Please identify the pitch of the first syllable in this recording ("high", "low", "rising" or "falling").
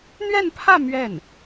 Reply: falling